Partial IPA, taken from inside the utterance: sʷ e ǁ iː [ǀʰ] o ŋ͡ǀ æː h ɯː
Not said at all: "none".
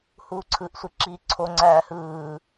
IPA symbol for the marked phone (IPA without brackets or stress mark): ǀʰ